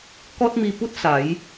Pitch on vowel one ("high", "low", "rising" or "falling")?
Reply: high